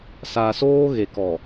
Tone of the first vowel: low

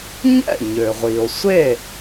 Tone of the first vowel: falling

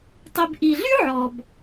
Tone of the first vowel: low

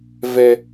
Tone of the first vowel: high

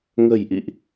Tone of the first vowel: low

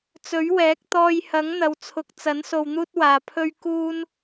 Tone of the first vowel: rising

